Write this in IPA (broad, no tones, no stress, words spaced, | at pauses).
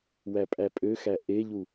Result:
wæpʼæpʼøxæ ʔeʎu